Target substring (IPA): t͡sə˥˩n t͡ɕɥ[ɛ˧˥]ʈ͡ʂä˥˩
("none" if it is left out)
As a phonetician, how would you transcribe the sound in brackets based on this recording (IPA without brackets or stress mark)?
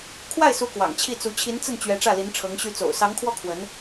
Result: ɛ˧˥